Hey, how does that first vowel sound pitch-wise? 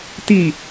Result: low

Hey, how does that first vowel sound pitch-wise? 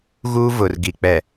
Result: high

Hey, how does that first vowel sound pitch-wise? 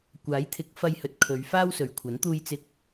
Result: rising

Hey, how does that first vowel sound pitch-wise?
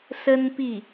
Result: high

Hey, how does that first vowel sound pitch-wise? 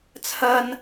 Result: high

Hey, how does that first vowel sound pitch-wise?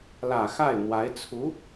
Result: low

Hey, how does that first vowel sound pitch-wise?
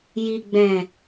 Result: low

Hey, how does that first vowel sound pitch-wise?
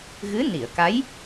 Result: rising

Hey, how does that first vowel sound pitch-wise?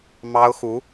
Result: high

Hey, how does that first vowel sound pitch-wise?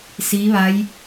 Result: rising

